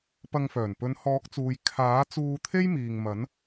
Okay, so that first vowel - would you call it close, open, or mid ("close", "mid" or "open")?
open